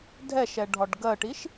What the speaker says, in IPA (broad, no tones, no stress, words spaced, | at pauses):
dʱɛʃɛɖʱɒɖ ɡɜʈiʃ